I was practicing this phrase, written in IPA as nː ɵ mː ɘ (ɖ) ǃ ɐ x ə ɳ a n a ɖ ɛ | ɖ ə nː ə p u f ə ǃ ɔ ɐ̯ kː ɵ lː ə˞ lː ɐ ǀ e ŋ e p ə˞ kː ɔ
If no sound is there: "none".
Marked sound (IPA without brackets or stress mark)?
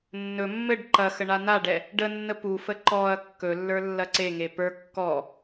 ɖ